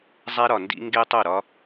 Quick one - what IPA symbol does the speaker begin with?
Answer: zˤ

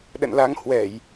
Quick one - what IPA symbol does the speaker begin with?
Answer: ɗ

